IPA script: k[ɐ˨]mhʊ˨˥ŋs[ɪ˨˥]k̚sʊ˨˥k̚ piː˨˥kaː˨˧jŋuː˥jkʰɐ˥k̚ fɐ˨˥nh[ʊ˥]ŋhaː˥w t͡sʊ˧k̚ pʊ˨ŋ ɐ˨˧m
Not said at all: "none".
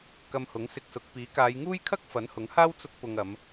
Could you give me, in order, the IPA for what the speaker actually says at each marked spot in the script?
ɐ˧, ɪ˧, ʊ˨˥

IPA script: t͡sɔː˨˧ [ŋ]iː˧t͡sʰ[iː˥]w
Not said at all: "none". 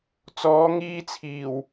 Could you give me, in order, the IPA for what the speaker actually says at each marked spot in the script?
ŋ, iː˨˩

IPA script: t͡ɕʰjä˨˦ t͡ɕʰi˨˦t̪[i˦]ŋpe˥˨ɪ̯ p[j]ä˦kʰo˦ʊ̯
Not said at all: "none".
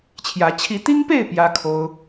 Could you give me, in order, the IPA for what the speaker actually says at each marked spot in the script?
i˦, j

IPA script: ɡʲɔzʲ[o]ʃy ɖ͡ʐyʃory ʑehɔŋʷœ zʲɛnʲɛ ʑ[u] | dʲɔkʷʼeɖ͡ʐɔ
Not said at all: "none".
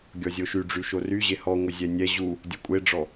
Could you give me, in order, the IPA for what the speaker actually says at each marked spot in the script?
o, u

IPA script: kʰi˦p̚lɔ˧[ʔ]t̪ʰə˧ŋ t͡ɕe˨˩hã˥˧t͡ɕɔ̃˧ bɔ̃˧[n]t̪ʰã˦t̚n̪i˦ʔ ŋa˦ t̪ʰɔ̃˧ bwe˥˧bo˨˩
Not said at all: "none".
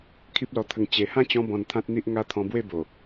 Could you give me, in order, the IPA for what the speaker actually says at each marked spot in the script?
none, n

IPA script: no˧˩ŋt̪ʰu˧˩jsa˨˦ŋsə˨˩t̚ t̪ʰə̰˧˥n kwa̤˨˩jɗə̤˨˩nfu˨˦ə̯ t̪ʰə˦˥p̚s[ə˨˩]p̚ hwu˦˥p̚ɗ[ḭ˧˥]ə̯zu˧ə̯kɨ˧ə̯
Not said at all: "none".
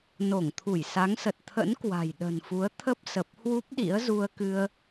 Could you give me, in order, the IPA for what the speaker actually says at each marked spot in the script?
ə˨˩, ḭ˧˥

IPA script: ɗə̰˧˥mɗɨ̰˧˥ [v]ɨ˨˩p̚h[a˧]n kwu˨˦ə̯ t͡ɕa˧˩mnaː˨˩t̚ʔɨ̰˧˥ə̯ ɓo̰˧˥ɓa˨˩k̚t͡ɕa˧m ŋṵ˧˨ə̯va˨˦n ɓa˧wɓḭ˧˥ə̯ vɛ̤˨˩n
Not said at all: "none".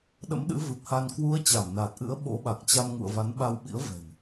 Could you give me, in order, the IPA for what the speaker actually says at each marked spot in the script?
v, a˧

